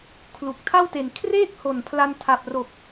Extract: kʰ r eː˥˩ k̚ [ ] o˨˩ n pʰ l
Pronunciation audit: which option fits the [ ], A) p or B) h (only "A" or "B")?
B